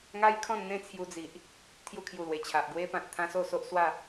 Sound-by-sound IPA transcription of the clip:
ŋa˦jkʰɔ̃˥˧n n̪ẽ˥˧t͡sʰju˧d͡zi˨ʔ | t̪ʰju˧kʰju˨˩lwe˨˩t͡ɕʰa˨ʔ ɡwe˧pã˨t̚t̪ʰã˧ so˥˧so˦ʔswa˥˧

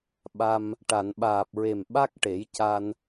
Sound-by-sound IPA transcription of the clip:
ɓa˧m | ʈa˨˩˨nɓaː˨˩p̚ɹe˨˩m ɓa˦˥k̚ ʈe˨˩˦jca˧n

